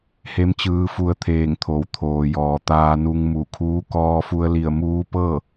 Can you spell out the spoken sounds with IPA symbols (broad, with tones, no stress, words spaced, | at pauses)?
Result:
he˧˥mt͡ɕɯː˧fu˧ə̯t̪ʰeː˧˩ŋ t̪ʰo˩˧wt̪ʰoː˩jɔː˩ t̪aː˧nu˧ŋ mu˧˩kʰuː˧˥ kɔː˧fu˧ə̯li˧˩ə̯ muː˧˥pɤː˥˨